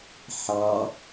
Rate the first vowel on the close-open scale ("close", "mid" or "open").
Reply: open